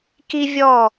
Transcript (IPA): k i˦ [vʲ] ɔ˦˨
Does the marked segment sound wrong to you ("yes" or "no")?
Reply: no